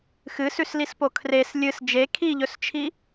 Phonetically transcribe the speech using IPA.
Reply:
xɨsʉslispo kʰres lʲɨs d͡ʒe kʰiʎɵst͡ʃʰi

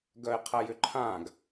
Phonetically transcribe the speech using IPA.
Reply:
ɡœɪ̯qʰɐjʏǃʰãɡ

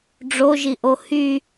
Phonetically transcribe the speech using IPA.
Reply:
ɖ͡ʐoʒiʔo hy

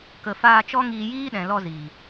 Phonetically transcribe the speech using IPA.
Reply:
kə˨faː˧t͡ʃɔ˦ ŋiː˧jiː˦ɗɛ̃˨lɔ˧ zi˨

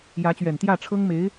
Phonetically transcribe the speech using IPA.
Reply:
jä˧˥t͡ɕɥɛ˨˩n t̪jä˥˩ʈ͡ʂʰɤ˥ŋme˧˥ɪ̯

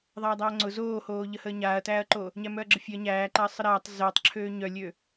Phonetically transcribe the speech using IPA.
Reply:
ðˤaːdˤæɐ̯ŋ͡ǀʊ zoːhoːʎə həːɲaːɐ̯tæːɐ̯ǃo | ɲæmœɐ̯ɡ͡ǁəfʲøɐ̯ ɲæːǃaɐ̯ sˤəɾæːtˤ zəːtˤǁʰøː ɲœlʲø

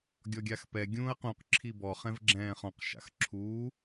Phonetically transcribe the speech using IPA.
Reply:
ɡʲɔɡʲaxpɛ ɡʲũːɐ̯qũq ǁʰibɔ χɛ̃vɡ͡ǁɛ̃ːχɔ̃q ʃa̰xǁʰuː

